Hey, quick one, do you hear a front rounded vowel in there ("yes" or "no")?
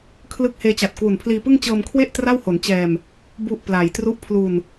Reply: no